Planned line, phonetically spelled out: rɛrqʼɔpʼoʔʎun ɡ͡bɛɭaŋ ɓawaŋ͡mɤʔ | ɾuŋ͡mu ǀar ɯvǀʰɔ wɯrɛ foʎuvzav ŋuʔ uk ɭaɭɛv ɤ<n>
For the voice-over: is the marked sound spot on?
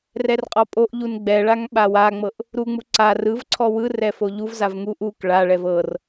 no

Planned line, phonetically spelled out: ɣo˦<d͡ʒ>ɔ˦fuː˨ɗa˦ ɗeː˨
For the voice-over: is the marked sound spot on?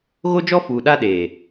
yes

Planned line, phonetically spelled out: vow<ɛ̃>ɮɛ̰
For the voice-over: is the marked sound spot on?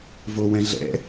yes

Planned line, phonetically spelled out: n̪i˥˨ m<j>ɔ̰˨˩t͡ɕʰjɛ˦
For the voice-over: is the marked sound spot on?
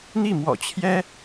no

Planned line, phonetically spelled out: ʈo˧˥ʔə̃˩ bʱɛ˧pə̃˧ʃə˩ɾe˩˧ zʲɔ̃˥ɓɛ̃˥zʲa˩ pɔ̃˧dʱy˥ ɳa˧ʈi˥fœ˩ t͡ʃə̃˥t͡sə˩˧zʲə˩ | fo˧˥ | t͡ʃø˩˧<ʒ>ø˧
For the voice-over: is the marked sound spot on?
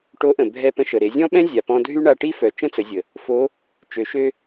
no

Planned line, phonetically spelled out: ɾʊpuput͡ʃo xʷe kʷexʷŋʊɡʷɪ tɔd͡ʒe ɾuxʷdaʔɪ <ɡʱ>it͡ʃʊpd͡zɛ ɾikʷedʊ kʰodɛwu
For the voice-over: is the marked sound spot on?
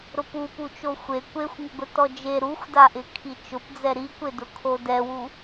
no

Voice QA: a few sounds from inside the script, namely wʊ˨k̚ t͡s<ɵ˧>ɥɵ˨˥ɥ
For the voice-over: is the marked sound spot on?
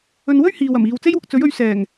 no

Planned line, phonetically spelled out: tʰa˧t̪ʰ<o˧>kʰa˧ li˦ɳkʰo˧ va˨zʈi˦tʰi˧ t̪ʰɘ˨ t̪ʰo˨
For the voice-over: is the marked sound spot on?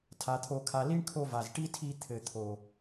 yes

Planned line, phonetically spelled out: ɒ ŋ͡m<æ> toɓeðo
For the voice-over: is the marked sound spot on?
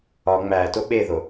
yes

